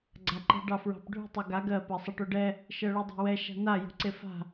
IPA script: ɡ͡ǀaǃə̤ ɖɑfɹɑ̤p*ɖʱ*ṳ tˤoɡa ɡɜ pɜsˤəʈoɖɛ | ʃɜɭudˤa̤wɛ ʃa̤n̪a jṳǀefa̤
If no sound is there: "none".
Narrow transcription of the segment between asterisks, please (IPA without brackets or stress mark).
ɖʱ